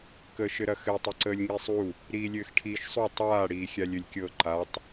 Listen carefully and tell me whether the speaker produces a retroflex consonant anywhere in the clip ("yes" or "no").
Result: yes